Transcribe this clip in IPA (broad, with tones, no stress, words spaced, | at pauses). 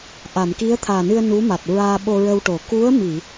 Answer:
ʔa˨˩˨mki˧˥ə̯t̪ʰaː˨˩nɨ˧ə̯ nu˧˥ma˨˩t̚ɹaː˧ ɓo˧ɹə˧wʈo˨˩˨ ku˧˥ə̯mi˨˩˨